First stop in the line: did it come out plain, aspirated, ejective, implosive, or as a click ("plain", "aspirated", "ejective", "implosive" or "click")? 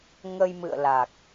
plain